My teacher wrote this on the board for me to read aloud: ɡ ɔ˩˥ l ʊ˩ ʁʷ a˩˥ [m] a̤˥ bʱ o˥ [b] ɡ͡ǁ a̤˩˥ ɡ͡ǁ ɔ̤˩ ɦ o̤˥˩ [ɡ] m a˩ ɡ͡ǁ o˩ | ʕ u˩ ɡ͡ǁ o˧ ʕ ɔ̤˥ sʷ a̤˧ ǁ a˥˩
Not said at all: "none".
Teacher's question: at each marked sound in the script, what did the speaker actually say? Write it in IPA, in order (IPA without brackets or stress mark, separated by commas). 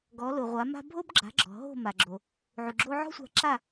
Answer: m, b, none